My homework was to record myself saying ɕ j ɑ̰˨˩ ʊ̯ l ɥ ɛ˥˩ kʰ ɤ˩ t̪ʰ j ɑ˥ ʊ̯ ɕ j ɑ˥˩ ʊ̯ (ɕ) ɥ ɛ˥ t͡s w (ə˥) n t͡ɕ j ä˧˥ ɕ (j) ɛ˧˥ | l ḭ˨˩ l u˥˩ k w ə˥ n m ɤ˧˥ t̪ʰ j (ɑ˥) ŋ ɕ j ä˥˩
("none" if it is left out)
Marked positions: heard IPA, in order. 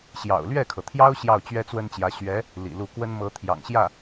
t͡ɕ, ə˥, ɥ, ɑ̰˨˩

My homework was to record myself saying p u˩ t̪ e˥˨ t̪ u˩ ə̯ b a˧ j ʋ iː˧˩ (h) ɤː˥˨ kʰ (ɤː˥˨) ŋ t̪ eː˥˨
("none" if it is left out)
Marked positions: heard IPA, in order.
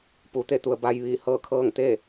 h, ɤː˥˨

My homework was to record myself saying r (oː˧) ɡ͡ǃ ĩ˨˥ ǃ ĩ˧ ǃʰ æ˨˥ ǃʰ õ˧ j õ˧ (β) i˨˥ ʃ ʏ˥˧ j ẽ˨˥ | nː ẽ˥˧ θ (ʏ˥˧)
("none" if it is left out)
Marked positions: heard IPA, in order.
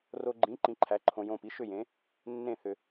o˧, p, ʏ˧

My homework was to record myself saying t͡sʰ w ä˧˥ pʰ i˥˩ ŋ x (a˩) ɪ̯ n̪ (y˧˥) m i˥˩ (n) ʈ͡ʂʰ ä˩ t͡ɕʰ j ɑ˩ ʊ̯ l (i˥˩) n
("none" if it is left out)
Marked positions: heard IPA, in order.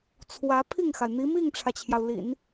a˩, i˧˥, ŋ, ḭ˨˩˦

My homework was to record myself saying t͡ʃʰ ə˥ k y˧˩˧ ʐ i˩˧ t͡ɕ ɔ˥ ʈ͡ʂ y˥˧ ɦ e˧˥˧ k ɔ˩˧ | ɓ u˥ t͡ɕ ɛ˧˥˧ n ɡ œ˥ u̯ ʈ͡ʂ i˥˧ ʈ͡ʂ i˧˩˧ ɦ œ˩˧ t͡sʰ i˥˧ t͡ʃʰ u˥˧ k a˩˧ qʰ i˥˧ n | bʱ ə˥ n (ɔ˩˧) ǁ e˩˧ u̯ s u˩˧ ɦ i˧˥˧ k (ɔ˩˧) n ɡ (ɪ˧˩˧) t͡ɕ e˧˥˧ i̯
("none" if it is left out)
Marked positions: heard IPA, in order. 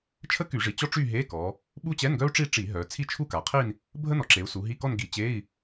ɔ˩˧, ɔ˥˧, i˧˩˧

